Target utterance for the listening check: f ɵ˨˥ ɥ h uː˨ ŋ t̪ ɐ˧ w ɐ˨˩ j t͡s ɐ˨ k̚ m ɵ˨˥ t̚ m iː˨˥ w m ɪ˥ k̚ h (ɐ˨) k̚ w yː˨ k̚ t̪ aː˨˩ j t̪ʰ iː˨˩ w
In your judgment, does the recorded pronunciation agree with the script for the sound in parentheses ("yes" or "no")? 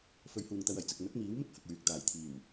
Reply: yes